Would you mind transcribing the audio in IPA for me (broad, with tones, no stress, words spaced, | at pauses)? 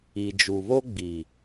i˨d͡ʒu˨βo˦ɡ͡bi˨